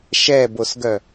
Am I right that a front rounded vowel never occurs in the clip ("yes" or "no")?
no